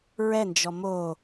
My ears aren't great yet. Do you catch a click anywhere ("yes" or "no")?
no